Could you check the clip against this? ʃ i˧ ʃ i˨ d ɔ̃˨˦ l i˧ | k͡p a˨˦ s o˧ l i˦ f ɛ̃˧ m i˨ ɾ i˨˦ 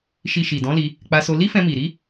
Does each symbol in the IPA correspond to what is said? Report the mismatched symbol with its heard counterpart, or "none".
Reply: a˨˦ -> a˧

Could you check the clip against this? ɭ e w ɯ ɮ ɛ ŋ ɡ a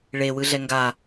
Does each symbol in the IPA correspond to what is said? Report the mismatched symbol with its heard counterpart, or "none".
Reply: none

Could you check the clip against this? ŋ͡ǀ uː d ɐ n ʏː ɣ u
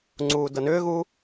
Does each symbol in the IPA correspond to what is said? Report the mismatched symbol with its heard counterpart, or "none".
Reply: none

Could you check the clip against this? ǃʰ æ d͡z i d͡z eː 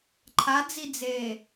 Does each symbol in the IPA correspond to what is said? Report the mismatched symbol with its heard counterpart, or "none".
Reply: æ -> a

